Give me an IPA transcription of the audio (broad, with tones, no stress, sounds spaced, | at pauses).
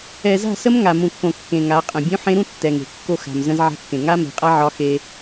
ɛ˨ z a̤˦˨ s ə˦ m ŋ a˨ m ũ˨ kː õ˨ kː ẽ˨ ŋ a˨˦ qʼ ə̃˨ bʲ ũ˦ ħ ẽ˦ ɾ ũ˦ tː ɛ˨ ŋ e̤˨ kː o˦˨ x a̤˨ m z ə̃˦ z ʕ a̤˦ kː ẽ˨ ŋ a˦ m e̤˨ qʼ a˦ ʕ ɒ˦ x e˦